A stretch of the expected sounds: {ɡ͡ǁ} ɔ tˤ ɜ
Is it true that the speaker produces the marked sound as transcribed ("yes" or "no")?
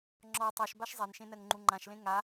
no